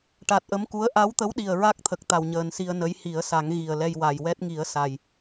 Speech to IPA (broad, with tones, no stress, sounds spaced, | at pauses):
ʈ a˨˩ t̚ ʔ ə˧˥ m k u˧˥ ə̯ ʔ a˧˥ w t̪ ə˧˥ w ɗ i˨˩ ə̯ ɹ a˦˥ k̚ t̪ʰ ə˨˩ k̚ t̪ a˨˩ w ɲ əː˨˩ n s i˧ ə̯ n ə˧˥ j h i˨˩˦ ə̯ s a˨˩˦ ŋ ɣ i˨˩ ə̯ l ɛ˧ j w a˨˩ j w ɛ˦˥ t̚ ŋ i˨˩˦ ə̯ s a˨˩ j